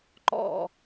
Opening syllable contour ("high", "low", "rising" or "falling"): falling